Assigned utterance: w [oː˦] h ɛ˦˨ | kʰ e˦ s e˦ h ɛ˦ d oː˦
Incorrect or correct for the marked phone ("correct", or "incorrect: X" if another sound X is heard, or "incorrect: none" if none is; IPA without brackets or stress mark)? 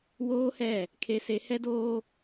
correct